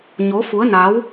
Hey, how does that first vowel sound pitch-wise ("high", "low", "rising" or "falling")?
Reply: rising